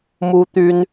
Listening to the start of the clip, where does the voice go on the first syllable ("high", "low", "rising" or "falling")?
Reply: high